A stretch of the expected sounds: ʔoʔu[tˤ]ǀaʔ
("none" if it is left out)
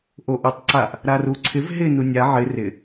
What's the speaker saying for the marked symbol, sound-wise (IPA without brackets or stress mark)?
tˤ